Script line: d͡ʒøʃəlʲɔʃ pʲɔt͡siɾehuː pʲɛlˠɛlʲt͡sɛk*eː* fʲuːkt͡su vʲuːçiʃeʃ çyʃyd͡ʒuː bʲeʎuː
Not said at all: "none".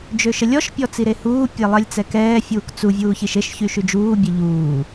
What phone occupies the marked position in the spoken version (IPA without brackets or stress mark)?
ɛː